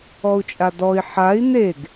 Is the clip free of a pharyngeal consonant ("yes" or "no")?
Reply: no